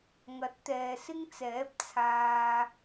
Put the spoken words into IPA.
ŋɐ˨˥t̚t̪ɛː˨sɪ˥ŋt͡sɛː˨˥p̚ t͡sʰaː˨

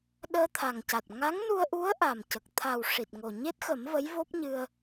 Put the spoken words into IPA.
ɗəː˧t̪ʰa˨˩ŋca˨˩t̚ ŋa˧˥ŋnu˧ə̯ʔu˧˥ə̯ ʔa˨˩mcə˨˩k̚ t̪ʰa˨˩w ʂi˨˩t̚ŋo˨˩ ɲe˦˥t̚xə˨˩˦m və˧˥jvo˦˥p̚ɲɨ˧ə̯

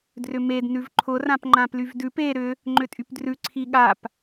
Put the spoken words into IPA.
drʏmed nʉvǃʰʊ rãpŋ͡ǃãplyvdʉp e ɾʏ | ŋ͡ǃʏtʼypdrʉ ǀʰiɠap

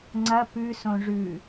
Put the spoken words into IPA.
ŋ͡ǀɐ pʉsõ ʐʉ

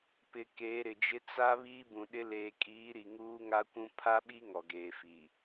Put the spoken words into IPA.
pɪ˨ keː˨˦ɾɪ˨d͡ʒɪ˦ t͡sa˦ βiː˦bũ˨ɗɪ˦ leː˨kʼiː˨˦ ɾi˨ŋuː˦ŋa˦kʷũ˦ pʰa˦ɓi˦ ŋɔ˨ɡeː˨fi˨

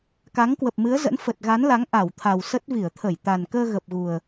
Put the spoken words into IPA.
ka˨˦ŋkwə˨˩p̚mɨ˨˦ə̯zə̰˧˥n fə˨˩t̚ɣa˨˦nla˨˦ŋ ʔa˧˩wt̪ʰa˨˩wsə˦˥t̚ vi˧˩ə̯t̪ʰə˧˩j t̪a˨˩n kəː˧ɣə˨˩p̚ɣu˨˩ə̯

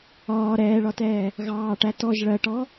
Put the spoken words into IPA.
ɒː ɾɛːɭɒtɛː | ɣɑːʈæ tɔʒ ɭɜʈɔ

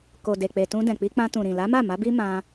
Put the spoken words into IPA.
ko˨de˨k͡pe˨ tũ˧dɛ̃˨k͡pi˧k͡pã˧ tũ˨ɾĩ˨ la˨˦ma˦˨ ma˨˦bi˦ mã˧

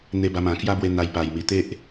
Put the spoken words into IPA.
n̪e˧ba˧mã˨˩ kja˦bwe˧ n̪a˧j pa˨˩jmi˨˩t̪e˦ʔ

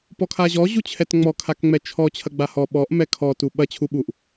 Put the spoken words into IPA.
pɔkʰaʑɔ ʑut͡ɕʰɛtŋ͡mɔ kʰakŋ͡mɛt͡ʃʰɔ t͡ɕʰɐɡ͡bahɔ ɓɔʔ mɛkʰɔ tuɓɐ t͡ɕʰuɓuʔ

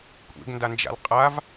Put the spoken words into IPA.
kʷʼḛɡndand͡ʒa̰l qʼav

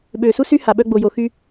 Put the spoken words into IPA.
ɓøː˩su˥sy˥ ha˩ɓœ˧ ɡ͡bo˩jo˩xy˧

